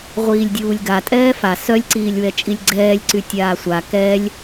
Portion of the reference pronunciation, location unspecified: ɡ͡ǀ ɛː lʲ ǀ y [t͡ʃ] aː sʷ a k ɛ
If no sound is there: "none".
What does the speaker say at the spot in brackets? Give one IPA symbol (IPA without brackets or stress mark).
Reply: tʲ